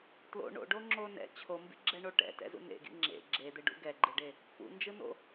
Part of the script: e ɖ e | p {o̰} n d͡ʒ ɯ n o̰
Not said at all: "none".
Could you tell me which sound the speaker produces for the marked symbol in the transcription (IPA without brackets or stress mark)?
ṵ